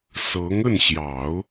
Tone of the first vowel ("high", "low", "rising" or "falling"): rising